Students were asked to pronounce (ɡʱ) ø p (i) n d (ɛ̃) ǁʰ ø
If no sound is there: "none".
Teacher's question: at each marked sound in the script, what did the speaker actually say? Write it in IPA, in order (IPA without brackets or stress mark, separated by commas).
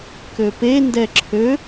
k, e, ɛ